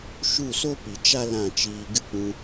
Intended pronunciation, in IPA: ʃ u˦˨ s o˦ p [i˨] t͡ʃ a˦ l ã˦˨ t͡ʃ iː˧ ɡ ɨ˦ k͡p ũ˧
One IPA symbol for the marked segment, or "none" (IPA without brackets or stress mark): i˨